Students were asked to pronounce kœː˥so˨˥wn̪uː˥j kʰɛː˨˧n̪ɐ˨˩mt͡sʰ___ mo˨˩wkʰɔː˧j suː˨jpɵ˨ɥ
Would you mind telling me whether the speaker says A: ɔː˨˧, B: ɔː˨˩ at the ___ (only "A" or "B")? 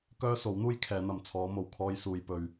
A